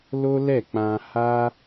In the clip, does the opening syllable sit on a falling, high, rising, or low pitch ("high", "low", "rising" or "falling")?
high